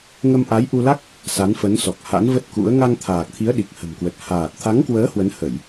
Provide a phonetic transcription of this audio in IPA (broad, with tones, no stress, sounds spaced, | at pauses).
ŋ ə˧ m ʔ a˨˦ j ʔ u˧ l a˦˥ k̚ | s a˨˦ n f ə˨˦ n s ɔ˨˩ k̚ h a̰˧˥ n v ə˦˥ t̚ k ṵ˧˥ ə̯ ŋ a˧ ŋ t̪ʰ aː˨˩ k̚ t̪ʰ i˨˦ ə̯ ɗ i˨˩ k̚ h ə̤˨˩ m k w ə˨˩ t̚ h aː˨˩ t̚ t̪ʰ a˨˦ ŋ k w əː˨˦ h w ə˨˦ n h ə˧˩˨ j